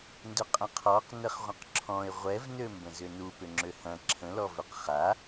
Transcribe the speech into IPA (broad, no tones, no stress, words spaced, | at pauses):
ndʏqʼə̃qʰɔq nəχʁʷə̃qǁʰɔ̃ɪ̯ ʁʷɛvnø mbə̃zʏnu pʏŋ͡ǁøhɐ̃ ǁʰə̃lɔ vʏqχa